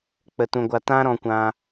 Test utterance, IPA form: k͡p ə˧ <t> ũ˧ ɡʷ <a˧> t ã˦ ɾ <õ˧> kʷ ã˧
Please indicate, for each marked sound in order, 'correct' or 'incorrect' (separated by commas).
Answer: correct, correct, incorrect